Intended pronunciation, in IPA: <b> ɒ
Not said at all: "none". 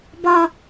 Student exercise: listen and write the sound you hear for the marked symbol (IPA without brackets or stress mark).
b